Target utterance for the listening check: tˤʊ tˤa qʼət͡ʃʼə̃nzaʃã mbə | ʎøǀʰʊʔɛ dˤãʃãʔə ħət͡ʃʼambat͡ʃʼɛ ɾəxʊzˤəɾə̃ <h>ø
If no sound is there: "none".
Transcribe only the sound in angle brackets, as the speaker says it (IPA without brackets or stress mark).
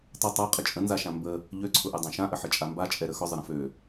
f